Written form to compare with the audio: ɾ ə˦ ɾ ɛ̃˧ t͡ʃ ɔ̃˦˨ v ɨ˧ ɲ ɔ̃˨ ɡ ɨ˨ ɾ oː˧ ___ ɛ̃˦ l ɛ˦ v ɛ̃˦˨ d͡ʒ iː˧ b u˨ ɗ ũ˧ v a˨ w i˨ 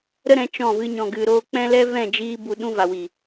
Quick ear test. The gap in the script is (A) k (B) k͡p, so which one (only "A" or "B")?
B